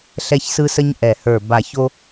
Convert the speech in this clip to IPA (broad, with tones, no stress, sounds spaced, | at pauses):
ɬ ɛ˧ ç s ɯ˧ s ə˧ ɲ ʔ ɛ˨˩ h ə˞˨˩ b a˨˩ ç o˧